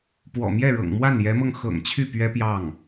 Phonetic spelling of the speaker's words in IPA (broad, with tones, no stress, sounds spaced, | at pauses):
p w ɔ̰˨˩ m j ɛ˥˩ ɻ ɤ̰˨˩ ŋ m w a˥˩ n j ɛ˧˥ m ɤ˧ ŋ x ɤ̰˨˩ ŋ t͡ɕʰ y˥˩ p ɥ ɛ˥ p j ɑ˥˩ ŋ